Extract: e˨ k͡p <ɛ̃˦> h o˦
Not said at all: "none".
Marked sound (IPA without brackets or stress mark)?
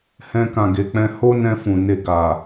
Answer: ɛ̃˧